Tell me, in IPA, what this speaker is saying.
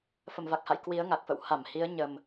f ə˧˩ m v a˨˩ k̚ h a̰˧˨ j k w i˨˦ ə̯ ŋ a˨˩ k̚ f ə̰˧˨ w h a˧˩ m h i˨˦ ə̯ ɲ ə˨˩ m

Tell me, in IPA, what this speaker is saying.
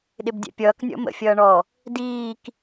ɗ ɪ b dʲ ɛ̰ pʲ ʌː k nʲ ɔ̰ m ə̰ fʲ ʌː ɳ ɔ | d iː k

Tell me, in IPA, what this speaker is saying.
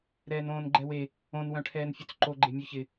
ɾ ɛː n õː n ɡ͡ǃ ɛ w e | õ n w œ̃ ʈʰ ɛː n fʲ ø t͡s ǃ o ɡ͡ǃ e mʲ œ ç ɪ

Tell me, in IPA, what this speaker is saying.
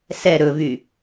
s ɛ ɾ ɵ v y

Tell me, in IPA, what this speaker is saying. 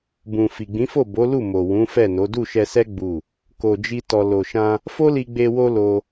b ũ˨ f i˨ ɡ͡b ĩ˨˦ f o˦˨ b o˨˦ l u˦˨ m o˨ w ũ˨˦ f ɛ˦˨ n o˨˦ d u˦˨ ʃ ɛ˧ s ɛ˦ ɡ͡b u˦˨ | k o˧ d͡ʒ i˦ t ɔ˧ l o˨ ʃ ã˧ | f o˦ l i˧ ɡ͡b e˧ w o˦ l o˧

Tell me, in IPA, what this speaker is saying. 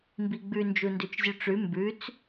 m b i ɡ͡b ʉ n d͡ʒ u n d ʉ t͡ʃ zʲ ʉ ʈ͡ʂ ʉ m b ʉ t͡s

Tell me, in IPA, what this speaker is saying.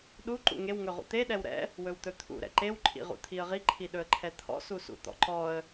ɗ u ǃ ṵ ŋ e w ŋ ɵ ʁ ṵ t̪ e ɗ ɛ w ɾ ɛ̰ | w ɵ w t̪ ɵ t̪ʰ ṵ ɾ ɛ̰ ǃ e w ǃʼ ḭ ʁ ṵ t̪ʰ i ə̯ ʁ i ǃʰ i ɗ ɵ ə̯ ǃʰ ɛ t̪ʰ ɔ̰ s u s ṵ t̪ ɔ̰ ǃ ɔ ə̯

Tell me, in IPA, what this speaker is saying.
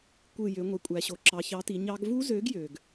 kʷ ɯ˧˩ j ø˩˧ ŋʷ e˩ kʷʼ æ˩ ɕ o˩ ǁ ɑ˩˧ ç ɑ˨˥ t i˩˧ ɲ ɑ˦˥ ɡ v u˦˥ z ø˨˥ ɡ j ø˩ ɡ

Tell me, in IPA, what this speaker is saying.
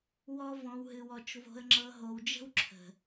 w ɔ˨ v ɔ̃˨ w ɦ ɨ˨ w ɔ˨ t͡ʃ v o̤˨ ə̯ ŋ͡ǁ ɤ˨ ɦ o˨ w d͡ʒ ə̤˦ w ǁʰ ə̤˨

